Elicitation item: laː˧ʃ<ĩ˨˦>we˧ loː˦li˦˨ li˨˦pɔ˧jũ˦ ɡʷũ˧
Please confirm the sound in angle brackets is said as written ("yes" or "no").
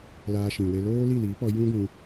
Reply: no